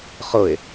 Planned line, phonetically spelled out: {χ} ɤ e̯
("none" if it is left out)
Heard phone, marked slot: χ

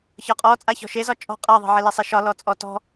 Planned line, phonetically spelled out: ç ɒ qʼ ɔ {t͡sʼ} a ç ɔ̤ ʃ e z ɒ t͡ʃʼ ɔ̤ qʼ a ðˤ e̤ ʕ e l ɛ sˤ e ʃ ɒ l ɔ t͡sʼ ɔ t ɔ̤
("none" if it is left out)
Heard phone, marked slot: t͡sʼ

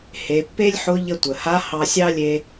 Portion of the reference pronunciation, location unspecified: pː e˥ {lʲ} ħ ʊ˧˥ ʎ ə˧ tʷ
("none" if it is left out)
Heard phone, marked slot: lʲ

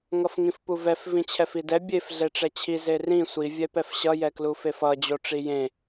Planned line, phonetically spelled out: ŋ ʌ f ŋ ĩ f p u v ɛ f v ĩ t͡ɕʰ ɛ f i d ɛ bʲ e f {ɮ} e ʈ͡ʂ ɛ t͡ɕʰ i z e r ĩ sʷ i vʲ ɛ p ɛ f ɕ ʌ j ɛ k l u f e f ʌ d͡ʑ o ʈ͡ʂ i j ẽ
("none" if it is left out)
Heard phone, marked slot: ɮ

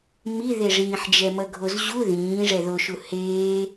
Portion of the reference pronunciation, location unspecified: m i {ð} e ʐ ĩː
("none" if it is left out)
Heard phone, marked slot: ð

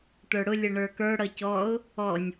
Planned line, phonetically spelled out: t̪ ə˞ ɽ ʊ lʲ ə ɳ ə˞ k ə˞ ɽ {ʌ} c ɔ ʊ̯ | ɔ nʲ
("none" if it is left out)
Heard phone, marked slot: ʌ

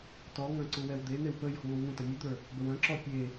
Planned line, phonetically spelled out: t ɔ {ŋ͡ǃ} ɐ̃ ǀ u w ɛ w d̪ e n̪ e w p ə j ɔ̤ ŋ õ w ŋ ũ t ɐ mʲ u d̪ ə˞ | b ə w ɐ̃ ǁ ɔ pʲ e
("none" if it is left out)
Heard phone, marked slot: ŋ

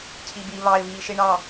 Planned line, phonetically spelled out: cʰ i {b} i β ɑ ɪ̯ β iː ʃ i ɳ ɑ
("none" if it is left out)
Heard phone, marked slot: b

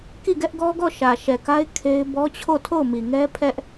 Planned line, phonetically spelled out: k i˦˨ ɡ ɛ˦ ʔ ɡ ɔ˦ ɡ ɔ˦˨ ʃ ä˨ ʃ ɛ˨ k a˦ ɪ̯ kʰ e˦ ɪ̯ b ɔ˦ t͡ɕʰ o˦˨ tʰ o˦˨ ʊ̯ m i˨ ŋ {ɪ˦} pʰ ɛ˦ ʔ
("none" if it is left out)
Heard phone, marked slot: ɛ˦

